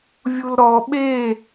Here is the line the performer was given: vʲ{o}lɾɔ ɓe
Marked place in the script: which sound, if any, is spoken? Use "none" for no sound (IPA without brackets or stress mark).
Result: u